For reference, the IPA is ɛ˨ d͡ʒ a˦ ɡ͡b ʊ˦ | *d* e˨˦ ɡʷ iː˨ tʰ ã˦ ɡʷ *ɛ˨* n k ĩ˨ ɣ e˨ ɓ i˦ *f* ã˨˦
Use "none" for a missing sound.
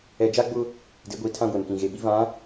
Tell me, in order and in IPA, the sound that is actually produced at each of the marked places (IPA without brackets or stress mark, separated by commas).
d, e˨, v